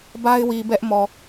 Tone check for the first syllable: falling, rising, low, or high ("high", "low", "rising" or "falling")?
high